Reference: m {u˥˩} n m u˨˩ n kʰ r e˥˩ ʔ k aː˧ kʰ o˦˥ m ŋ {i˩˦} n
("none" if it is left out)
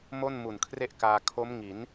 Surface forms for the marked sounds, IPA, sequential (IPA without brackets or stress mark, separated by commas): o˥˩, i˩˦